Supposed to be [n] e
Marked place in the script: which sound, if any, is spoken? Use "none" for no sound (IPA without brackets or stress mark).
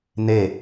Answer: n